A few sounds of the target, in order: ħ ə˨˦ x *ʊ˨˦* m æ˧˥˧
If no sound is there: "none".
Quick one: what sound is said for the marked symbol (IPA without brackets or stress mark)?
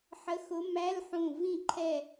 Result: ʊ˨˦